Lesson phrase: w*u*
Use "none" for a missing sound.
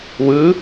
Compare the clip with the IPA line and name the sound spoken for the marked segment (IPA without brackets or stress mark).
ɯ